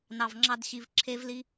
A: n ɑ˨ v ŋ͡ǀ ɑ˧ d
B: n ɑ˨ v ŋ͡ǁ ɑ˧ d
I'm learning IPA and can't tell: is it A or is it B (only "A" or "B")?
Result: B